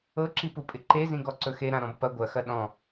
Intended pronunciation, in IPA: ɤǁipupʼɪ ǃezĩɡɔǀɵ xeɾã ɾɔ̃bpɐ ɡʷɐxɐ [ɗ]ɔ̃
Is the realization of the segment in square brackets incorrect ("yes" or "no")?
no